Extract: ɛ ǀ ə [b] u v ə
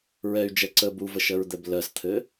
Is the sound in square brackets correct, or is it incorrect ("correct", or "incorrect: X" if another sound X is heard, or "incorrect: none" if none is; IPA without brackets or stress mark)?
correct